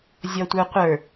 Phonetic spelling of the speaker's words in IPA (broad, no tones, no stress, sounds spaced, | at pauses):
zʲ ɔ tʷ ə˞ qʷ ə˞